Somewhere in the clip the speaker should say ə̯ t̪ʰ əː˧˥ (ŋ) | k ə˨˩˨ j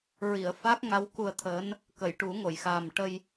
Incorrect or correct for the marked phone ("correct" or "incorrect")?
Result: incorrect